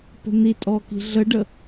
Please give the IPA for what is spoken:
pə̤n̪itʼɔ ki̤ɮəɖə

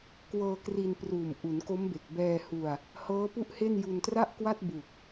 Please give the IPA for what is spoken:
kwɤː˧kri˧npruː˨˩m ʔu˩˦nko˦˥mbe˨˩k̚ bɛː˧ hu˧a̯ | hɤː˦˥pu˥˩ʔhe˥˩n ju˧ntra˥˩ʔkwa˥˩t̚ bu˨˩k̚

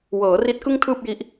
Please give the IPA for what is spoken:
wɤː˩˦ri˦˥t̚kɯ˥˩ŋ tʰɯː˥˩p̚ji˦˥ʔ

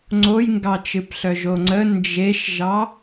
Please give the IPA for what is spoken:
ŋ͡ǀojŋɡɑt͡ʃɨpɬœ ʒoŋ͡ǀə nd͡ʒeʃʒɑ

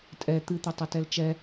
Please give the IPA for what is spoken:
tʼɛ t̪ɨt̪etˤɘtɛl t͡ʃɛ

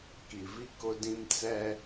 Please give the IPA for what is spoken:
ki˨vi˦ kʊ˦dĩ˦m t͡sɛ˦

